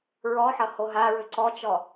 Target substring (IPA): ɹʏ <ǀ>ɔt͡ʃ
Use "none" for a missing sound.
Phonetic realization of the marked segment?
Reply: ǀ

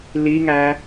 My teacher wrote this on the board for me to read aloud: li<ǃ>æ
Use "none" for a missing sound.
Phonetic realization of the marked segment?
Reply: ŋ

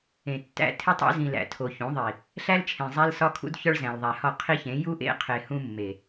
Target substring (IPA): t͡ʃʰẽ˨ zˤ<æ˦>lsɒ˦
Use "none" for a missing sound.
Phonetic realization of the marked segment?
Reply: æ˦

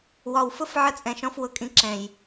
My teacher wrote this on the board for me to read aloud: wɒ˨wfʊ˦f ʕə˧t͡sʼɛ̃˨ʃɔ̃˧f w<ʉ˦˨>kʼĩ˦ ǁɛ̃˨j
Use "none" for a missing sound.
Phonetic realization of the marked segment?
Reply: ʊ˦˨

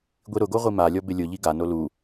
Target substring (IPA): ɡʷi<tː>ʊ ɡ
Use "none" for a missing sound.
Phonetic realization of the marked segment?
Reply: ɾ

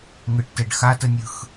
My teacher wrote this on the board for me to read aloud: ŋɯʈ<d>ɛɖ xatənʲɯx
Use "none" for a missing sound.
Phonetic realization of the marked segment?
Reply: t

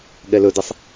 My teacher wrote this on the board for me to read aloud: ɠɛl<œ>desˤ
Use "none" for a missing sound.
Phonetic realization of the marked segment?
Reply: ɵ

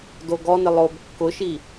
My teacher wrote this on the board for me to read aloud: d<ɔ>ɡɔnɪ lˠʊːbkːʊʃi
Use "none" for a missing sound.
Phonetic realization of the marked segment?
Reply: o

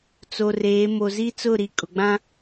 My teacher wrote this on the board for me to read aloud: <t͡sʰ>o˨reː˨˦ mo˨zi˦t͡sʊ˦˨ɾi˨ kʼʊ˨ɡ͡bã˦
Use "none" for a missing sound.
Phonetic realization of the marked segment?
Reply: t͡s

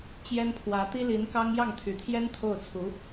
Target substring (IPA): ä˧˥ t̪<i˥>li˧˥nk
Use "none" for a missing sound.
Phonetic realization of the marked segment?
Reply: i˥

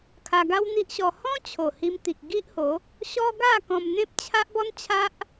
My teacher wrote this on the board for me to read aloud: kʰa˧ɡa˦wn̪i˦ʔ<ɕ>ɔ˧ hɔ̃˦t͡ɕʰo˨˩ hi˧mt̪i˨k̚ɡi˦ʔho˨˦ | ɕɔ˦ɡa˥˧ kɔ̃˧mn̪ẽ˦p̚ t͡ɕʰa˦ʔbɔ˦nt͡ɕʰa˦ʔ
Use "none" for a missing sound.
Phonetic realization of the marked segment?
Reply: ɕ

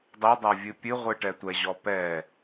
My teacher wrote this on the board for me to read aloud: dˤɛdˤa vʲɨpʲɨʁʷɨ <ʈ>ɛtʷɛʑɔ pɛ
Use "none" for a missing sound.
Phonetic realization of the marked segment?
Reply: ʈ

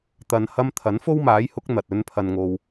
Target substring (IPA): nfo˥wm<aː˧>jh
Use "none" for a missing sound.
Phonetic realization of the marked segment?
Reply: aː˨˥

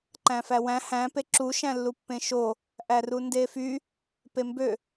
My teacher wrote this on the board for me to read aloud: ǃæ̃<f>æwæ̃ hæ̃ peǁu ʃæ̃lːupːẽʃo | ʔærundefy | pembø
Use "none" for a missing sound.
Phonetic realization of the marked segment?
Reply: f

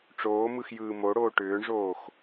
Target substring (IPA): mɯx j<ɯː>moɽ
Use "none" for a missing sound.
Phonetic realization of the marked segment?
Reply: ɯː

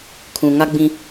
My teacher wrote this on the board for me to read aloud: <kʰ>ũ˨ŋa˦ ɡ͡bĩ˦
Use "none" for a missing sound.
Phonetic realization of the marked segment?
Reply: kʰ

